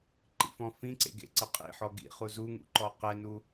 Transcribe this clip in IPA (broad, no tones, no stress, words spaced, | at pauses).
ǃḭfɔ̃fĩǀḛ ɡḛǀəqʼḭħɔ ɡḭχu zuŋṵ ǃɔqɛnu